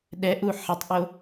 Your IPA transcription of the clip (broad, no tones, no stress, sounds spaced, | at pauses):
ɗ ɛ ʔ u ħ ɪ tˤ ʔ o